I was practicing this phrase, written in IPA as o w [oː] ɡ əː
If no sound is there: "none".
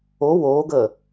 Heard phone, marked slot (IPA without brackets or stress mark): oː